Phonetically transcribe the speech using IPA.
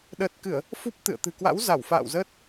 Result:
ɗ əː˨˩ t̚ k ɨ˧˩˨ ə̯ | f u˦˥ p̚ t̪ ɨ̰˧˨ ə̯ t̪ ɨ̤˨˩ k w a̰˧˥ w z a˧˩ w f a̰ː˧˨ w z əː˦˥ t̚

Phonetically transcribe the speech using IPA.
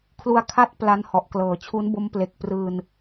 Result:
kʰ l u˧ a̯ kʰ a˥˩ t̚ p l a˦˥ n h ɔ˨˩ ʔ k l ɤː˩˦ t͡ɕʰ u˦˥ n b o˦˥ m p l e˨˩ k̚ p r ɯː˧ n

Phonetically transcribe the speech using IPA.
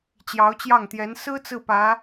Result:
t͡ɕ j ɑ˧˥ ʊ̯ t͡ɕ j ɑ˥˩ ŋ t̪ j ɛ˧˥ n s ɹ̩˥ t͡s ɹ̩˥˩ p ä˧˥

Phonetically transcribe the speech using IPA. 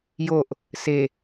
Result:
j o ʔ | s e

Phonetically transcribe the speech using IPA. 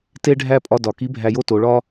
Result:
t e˧ ɖʱ æ˧ pʼ ɒ˧ d ɒ˩ k i˧˥ bʱ æ˧ j o˥ t o˩˧ ɭ ɒ˥

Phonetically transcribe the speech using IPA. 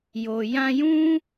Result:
j o˨ j ã˧ j ũ˦

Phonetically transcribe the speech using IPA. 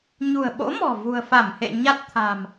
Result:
ɲ ṳ˨˩ ə̯ ɓ o̰˧˥ m ɔ̤˨˩ v ṳ˨˩ ə̯ f a˧˩ m h ḛ˧˨ ɲ a˦˥ t̚ t̪ʰ a̤˨˩ m

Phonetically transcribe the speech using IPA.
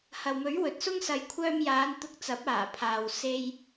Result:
h ɐ˨ w m ɵ˨˥ ɥ w ɵ˨ t̚ s ʊ˥ ŋ s ɐ˨˧ j kʷʰ œː˧ m j aː˨˧ n t̪ ʊ˧ k̚ t͡s ɐ˨˥ p̚ aː˨˩ pʰ aː˨ w s e˧ j

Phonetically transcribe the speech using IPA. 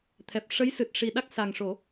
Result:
t̪ʰ ɛ˨˩ p̚ ʂ ə˧˥ j s ɨ˨˩ t̚ ʂ i˨˩ ɗ a˦˥ k̚ s a˨˩ ŋ ʂ o˨˩˦

